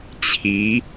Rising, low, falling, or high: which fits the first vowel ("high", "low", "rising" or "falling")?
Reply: rising